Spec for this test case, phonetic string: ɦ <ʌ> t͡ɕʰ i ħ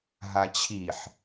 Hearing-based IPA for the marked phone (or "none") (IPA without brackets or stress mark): a